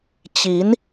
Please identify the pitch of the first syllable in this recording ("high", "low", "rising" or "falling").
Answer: rising